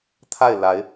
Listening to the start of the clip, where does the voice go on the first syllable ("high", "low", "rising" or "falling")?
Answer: falling